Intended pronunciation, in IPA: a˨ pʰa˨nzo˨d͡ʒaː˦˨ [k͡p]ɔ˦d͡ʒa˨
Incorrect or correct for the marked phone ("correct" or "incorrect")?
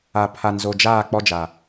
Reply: correct